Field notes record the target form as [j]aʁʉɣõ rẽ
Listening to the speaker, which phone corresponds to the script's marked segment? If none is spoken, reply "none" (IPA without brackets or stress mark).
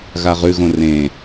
ɣ